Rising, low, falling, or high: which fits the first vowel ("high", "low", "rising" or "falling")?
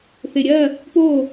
low